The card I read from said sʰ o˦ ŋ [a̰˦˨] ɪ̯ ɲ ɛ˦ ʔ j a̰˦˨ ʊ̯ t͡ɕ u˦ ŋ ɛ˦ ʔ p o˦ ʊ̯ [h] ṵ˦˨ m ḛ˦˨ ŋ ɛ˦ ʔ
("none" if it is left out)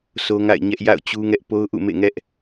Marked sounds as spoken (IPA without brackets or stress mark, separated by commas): a̰˦˨, ʔ